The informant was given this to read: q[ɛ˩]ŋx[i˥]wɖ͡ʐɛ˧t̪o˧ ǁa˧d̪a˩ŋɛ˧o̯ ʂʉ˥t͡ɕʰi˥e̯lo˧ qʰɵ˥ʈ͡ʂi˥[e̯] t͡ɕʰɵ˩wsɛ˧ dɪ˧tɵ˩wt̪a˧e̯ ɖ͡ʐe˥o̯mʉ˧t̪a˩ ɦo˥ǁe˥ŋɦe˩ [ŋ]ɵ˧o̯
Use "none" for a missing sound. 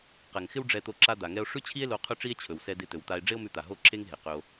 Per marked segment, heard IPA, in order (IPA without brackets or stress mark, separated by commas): ɛ˩, ɪ˥, e̯, q